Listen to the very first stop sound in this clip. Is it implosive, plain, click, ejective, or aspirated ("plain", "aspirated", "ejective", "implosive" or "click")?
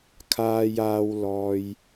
aspirated